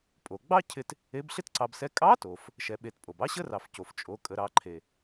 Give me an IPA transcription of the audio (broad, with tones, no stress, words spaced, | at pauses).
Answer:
pʼo˩ɡ͡bɑ˥ cʰɪ˧t | e˧˥bɬɪ˥tǀɑ˧bsɛ˧˥ kʼɑ˧˥to˩f | ʃɛ˧ɓe˧tpʼo˩b ɑ˥ɕə˥rɑ˩fco˩f t͡ʃʼo˩˧ kʼə˩˧ɾɑ˩˧ ǃʰe˩